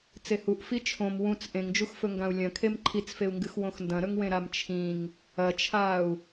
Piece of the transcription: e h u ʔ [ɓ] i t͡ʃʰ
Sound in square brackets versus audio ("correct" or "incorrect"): incorrect